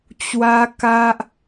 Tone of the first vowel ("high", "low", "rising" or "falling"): high